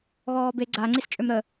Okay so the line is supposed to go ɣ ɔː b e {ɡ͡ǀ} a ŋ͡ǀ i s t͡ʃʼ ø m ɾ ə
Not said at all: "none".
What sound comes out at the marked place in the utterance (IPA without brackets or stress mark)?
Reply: ɡ͡ǀ